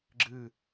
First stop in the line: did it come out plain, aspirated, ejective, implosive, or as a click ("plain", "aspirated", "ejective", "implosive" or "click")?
click